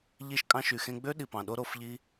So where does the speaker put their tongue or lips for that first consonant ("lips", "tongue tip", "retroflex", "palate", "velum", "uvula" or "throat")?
palate